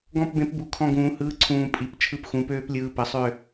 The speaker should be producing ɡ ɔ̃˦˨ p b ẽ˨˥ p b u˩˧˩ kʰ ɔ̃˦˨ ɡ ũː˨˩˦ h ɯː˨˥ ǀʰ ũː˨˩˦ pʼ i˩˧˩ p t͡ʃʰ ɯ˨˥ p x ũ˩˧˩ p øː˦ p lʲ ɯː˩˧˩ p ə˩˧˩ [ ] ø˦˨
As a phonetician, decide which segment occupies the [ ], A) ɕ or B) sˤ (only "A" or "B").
B